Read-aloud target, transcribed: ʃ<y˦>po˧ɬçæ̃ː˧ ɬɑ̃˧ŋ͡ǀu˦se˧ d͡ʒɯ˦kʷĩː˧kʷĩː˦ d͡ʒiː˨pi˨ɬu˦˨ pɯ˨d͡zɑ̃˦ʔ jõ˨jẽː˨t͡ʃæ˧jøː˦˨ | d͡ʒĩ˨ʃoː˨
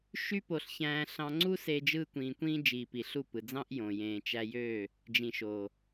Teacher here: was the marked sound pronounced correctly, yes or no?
yes